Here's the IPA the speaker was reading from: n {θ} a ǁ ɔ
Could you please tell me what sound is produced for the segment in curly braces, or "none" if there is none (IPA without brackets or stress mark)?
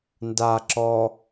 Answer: d